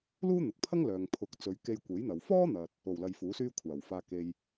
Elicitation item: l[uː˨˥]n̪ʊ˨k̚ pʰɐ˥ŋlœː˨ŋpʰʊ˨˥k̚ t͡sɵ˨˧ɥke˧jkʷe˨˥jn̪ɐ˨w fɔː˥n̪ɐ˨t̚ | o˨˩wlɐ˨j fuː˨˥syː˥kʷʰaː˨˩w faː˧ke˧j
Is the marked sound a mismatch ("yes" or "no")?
yes